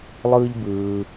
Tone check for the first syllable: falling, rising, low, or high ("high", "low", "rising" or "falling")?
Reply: high